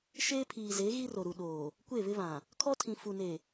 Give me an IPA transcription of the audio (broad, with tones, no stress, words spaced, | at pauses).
ʃeː˦pʰiː˨ze˨˦ ɣi˦ro˨ɾu˨ ɗoː˨ | kʷe˦˨βɪ˦βã˨ | kʰɔ˦tʰĩ˨ fu˨ne˨